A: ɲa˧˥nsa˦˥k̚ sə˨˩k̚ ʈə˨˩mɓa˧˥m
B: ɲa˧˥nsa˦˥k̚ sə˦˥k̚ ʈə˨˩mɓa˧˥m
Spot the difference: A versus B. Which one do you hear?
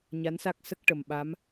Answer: B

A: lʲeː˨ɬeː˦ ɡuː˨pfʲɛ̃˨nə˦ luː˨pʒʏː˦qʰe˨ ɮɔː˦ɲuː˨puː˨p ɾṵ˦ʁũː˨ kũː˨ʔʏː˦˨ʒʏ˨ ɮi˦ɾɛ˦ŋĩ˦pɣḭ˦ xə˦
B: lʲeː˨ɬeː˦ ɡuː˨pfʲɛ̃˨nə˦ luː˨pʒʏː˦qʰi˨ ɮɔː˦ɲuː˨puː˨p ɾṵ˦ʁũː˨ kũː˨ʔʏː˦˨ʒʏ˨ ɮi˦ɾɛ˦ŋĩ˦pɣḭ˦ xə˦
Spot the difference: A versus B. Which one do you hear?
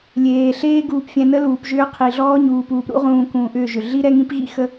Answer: B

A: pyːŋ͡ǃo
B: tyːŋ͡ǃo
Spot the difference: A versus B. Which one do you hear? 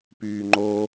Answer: A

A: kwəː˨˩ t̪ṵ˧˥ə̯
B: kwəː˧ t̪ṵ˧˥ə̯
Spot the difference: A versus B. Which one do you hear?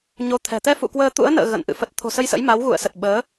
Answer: B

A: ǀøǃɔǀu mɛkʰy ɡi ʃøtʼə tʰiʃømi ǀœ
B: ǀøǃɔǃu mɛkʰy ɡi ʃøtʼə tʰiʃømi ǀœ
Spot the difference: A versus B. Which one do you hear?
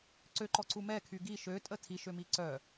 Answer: A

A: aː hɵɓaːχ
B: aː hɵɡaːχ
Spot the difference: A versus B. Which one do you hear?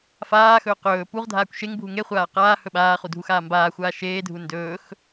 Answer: A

